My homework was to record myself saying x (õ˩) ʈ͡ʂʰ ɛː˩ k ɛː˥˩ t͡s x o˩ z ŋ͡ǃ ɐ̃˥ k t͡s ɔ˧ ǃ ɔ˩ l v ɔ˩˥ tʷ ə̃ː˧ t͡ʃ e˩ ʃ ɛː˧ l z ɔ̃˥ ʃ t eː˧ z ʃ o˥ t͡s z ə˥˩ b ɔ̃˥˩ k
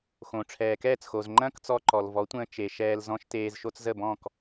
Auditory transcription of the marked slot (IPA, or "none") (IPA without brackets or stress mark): õ˩